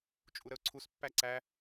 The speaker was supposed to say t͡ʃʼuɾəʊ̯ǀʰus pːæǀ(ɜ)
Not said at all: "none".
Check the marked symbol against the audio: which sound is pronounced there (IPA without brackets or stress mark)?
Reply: æ